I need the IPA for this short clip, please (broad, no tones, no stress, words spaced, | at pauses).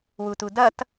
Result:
wutudʌt